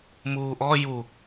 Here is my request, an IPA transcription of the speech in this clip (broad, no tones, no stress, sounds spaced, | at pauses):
m uː ʔ ɔ j u